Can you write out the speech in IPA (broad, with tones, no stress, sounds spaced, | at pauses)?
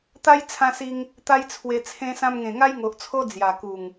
t̪ a˦ j t͡sʰ ã˧ s i˧ ŋ | t̪ a˦ j t͡sʰ w e˧ t͡sʰ ẽ˧ s ã˧ m ŋ ẽ˨˩ ŋ a˦ j ŋ o˨ ʔ t͡sʰ o˦ d͡z j a˨˩ k u˨˩ ŋ